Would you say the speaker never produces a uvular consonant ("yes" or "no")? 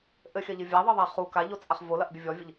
no